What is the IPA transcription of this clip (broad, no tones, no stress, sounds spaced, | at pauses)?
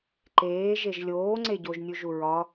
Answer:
ǃ eː ʒ e ʒ lʲ oː ŋ͡ǀ e ɟ o ʒ nʲ u ʒ u ɹ ɒ